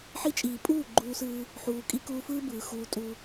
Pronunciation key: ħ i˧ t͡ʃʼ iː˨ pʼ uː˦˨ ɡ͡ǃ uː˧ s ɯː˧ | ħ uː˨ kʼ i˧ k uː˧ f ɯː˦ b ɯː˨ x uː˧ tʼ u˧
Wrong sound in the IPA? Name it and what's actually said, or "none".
none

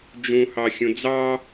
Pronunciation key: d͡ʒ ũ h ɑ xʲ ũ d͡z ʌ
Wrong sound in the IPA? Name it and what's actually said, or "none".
ʌ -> ɑ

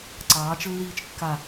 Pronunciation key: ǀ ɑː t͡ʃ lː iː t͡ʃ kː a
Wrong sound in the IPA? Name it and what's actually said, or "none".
none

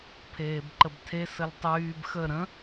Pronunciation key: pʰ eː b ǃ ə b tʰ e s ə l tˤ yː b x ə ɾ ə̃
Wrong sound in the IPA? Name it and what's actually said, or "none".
none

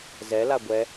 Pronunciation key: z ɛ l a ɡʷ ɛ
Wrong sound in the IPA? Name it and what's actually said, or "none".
none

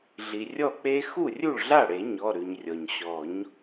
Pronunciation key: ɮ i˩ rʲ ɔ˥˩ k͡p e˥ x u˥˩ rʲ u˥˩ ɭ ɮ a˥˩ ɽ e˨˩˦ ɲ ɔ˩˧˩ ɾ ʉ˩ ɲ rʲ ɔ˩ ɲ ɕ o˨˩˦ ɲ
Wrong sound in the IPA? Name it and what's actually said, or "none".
o˨˩˦ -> ɔ˨˩˦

